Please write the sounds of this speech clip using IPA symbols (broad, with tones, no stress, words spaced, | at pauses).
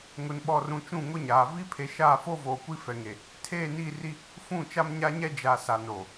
ŋʊ˨nɓɔ˨rũ˨ t͡ʃũ˦˨ŋʊ˦ɲaː˨ vi˦pʰe˨ ʃaː˦˨foː˦voː˨ kʷi˦fɛ˨ŋe˨ | tʰeː˦˨ni˦˨ri˦ | fũ˦˨t͡ʃa˦mɲa˦ɲɛ˦ d͡ʒa˨ sa˨no˨